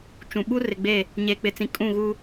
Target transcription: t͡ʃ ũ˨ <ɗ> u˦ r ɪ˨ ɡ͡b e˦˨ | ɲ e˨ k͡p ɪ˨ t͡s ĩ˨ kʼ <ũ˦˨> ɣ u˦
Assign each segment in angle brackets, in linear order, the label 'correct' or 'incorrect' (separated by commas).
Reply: incorrect, correct